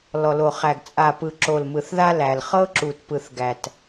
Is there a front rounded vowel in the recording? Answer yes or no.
no